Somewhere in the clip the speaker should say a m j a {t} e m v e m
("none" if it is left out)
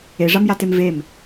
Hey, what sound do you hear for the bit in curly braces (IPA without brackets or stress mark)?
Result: t